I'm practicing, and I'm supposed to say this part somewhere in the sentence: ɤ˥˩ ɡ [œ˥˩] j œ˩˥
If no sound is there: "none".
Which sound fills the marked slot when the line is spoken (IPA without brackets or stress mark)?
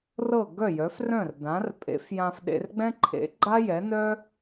œ˥˩